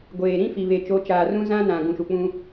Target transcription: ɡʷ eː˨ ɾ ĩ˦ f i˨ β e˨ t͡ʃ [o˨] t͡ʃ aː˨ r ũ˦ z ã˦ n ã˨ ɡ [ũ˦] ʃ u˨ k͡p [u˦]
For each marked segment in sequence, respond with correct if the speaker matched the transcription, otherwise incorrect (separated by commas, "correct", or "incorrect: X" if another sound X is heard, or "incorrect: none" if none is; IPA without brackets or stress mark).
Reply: incorrect: o˨˦, incorrect: ũ˨, incorrect: ũ˦